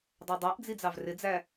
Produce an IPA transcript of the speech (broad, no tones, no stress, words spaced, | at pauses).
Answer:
dˤædˤæʔd͡zi d͡zɑvrɪd͡zæ